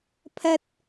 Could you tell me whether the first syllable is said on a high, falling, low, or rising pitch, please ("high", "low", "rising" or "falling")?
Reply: high